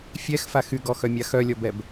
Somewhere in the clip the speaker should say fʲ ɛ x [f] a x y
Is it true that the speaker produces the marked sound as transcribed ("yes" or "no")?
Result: yes